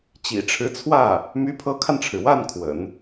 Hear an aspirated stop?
yes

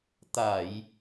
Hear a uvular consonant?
no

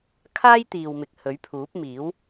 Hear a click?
no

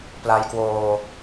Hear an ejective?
no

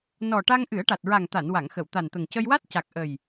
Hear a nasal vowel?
no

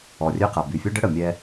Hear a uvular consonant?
yes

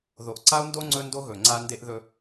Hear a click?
yes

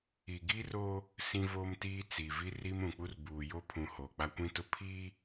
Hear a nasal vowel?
yes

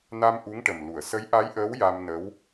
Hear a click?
no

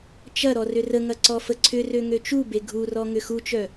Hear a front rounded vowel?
yes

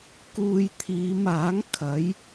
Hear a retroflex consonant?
no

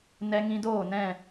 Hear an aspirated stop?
no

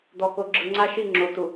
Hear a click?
yes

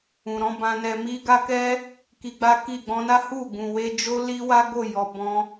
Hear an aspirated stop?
no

